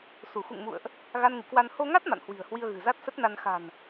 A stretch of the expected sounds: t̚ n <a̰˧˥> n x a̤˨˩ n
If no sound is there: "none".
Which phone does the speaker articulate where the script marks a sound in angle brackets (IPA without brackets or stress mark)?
a˧